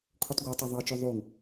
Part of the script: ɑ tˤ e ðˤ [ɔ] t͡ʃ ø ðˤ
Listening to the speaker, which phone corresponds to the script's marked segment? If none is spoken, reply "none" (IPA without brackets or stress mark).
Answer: ɑ